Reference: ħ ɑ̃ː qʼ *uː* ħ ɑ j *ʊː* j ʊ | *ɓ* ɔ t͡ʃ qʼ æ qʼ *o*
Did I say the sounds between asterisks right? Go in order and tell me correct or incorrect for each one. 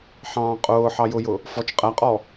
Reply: incorrect: ʊː, incorrect: ʊ, incorrect: f, incorrect: ɔ

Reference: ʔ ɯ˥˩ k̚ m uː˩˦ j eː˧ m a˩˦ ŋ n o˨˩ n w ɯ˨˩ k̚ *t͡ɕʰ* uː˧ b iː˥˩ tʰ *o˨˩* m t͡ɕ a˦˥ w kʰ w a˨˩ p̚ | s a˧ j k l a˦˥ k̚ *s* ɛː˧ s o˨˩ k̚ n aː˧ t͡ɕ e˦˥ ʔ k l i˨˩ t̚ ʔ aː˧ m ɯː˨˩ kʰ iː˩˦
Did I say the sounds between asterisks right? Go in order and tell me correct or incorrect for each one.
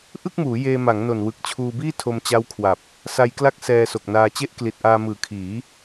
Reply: correct, incorrect: o˧, correct

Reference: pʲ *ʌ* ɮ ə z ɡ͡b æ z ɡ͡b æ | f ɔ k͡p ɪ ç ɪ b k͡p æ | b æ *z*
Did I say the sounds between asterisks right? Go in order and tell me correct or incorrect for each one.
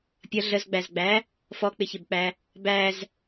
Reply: correct, correct

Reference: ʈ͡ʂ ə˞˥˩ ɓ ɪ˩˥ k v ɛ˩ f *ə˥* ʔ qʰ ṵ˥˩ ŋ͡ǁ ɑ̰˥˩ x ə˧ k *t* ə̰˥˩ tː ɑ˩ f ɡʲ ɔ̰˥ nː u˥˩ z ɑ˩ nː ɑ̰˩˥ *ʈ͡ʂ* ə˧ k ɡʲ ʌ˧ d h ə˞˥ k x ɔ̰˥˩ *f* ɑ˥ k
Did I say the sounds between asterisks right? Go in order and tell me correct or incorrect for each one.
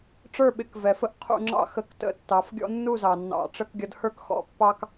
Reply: correct, correct, correct, incorrect: pː

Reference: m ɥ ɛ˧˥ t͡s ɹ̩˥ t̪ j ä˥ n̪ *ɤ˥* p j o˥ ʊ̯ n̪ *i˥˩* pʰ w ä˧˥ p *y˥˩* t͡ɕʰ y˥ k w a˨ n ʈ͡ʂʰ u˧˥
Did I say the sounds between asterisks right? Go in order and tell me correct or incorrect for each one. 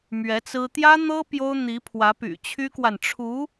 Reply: correct, incorrect: i˧˥, incorrect: y̰˨˩

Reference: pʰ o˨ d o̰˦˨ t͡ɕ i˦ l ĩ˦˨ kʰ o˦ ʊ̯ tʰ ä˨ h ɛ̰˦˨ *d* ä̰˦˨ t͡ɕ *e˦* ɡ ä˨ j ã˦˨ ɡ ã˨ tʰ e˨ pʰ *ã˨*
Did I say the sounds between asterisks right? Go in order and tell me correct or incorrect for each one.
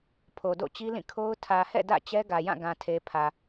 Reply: correct, incorrect: ɛ˦, incorrect: ä˨

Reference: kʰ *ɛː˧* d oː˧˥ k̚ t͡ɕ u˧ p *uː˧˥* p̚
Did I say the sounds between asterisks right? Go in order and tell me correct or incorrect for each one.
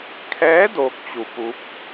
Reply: incorrect: ɛː˧˥, incorrect: u˧˥

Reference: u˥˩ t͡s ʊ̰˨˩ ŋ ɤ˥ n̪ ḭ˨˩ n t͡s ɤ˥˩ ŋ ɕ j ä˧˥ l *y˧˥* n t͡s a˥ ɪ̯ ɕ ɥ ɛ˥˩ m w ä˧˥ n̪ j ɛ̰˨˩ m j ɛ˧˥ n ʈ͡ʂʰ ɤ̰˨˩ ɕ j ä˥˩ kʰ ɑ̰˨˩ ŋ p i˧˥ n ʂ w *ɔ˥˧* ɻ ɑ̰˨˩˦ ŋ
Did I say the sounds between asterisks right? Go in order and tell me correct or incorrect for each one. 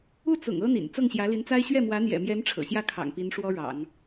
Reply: incorrect: i˧˥, incorrect: ɔ˥

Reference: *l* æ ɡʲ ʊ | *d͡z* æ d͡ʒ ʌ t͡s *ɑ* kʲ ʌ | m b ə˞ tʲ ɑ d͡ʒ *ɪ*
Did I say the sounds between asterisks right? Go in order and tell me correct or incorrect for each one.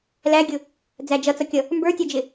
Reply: correct, correct, incorrect: ʌ, correct

